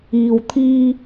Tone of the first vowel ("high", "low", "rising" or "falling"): low